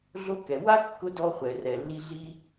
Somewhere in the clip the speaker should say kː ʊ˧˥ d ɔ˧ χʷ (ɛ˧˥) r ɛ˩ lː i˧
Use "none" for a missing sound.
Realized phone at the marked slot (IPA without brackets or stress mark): ɛ˩